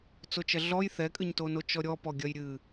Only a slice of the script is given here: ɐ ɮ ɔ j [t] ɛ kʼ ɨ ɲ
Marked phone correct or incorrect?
incorrect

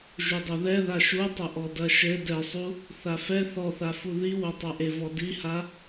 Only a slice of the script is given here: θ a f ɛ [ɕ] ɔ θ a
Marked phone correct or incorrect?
incorrect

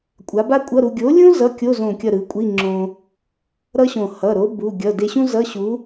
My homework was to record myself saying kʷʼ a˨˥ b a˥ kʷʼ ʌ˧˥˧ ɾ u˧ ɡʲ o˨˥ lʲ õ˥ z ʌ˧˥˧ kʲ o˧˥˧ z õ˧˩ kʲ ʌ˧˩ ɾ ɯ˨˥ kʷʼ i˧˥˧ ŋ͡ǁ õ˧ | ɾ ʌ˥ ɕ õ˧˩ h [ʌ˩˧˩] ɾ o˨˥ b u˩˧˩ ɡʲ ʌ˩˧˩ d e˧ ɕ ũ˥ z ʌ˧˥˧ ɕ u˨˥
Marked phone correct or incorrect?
correct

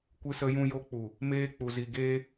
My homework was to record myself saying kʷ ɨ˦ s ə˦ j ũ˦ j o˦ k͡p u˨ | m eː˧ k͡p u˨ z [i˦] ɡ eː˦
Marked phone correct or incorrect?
incorrect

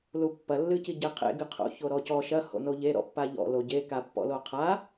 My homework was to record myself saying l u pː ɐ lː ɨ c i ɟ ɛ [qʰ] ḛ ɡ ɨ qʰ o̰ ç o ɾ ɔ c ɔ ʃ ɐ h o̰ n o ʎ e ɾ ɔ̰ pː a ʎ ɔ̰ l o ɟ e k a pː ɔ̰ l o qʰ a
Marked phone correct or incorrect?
correct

